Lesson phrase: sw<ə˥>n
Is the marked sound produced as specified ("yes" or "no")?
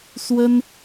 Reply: yes